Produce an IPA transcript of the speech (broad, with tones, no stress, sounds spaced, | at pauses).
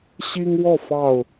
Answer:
ɕ i˦ ŋ w ɔ˥˨ f ɑ˥˨ ʊ̯